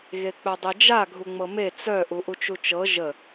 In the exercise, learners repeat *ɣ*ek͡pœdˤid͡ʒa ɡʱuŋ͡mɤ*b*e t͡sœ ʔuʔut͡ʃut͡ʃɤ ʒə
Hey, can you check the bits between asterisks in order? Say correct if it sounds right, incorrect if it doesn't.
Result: correct, incorrect: m

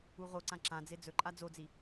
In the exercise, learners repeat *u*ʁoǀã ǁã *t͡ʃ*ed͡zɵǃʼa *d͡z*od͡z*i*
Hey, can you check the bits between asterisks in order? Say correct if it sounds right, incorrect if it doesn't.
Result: correct, incorrect: d͡z, correct, correct

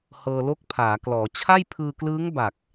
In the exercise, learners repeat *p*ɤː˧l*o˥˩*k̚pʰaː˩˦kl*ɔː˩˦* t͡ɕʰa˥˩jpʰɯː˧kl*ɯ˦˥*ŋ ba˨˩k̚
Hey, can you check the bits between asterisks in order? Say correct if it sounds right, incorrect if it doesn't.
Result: incorrect: h, correct, correct, incorrect: ɯː˦˥

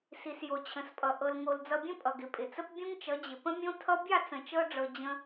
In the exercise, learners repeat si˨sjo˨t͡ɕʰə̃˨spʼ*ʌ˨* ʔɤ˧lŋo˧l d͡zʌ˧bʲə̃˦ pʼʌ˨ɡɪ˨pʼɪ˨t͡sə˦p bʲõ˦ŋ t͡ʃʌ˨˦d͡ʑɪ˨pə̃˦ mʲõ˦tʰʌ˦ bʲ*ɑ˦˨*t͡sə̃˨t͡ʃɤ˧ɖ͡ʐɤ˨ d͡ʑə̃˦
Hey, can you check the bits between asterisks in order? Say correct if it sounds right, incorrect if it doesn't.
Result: correct, correct

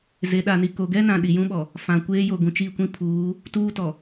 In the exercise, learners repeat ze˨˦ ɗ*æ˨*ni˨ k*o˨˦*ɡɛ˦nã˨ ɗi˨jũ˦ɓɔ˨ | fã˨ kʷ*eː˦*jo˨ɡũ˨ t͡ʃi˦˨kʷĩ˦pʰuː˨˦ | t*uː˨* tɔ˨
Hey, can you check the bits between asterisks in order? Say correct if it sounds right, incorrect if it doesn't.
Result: incorrect: a˨, incorrect: o˨, correct, incorrect: uː˦

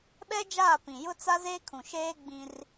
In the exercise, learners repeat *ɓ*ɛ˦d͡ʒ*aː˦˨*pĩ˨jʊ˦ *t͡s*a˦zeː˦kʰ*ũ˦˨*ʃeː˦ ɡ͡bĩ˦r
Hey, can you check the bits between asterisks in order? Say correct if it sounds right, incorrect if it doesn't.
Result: correct, correct, correct, incorrect: ũ˨

